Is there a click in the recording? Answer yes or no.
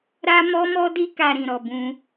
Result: no